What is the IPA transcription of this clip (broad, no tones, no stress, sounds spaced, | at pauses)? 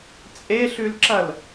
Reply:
t͡sʼ e ɬ ʉ l ǁ ɐ l